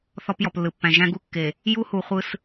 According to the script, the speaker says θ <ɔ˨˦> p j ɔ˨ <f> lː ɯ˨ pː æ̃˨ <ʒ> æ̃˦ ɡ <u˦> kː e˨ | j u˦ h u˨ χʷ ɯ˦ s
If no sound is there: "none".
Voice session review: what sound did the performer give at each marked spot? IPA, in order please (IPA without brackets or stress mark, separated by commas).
ɔ˦, p, ʒ, u˦